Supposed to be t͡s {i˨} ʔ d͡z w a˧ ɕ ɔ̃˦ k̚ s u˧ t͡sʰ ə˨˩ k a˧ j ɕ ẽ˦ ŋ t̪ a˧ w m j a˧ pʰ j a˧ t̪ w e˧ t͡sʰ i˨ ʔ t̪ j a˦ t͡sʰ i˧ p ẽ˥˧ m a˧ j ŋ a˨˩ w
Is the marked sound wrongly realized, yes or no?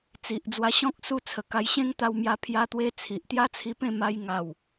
no